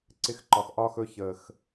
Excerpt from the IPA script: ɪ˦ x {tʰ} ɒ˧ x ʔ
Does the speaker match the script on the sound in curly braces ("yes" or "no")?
no